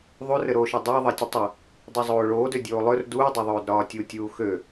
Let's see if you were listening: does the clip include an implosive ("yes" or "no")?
no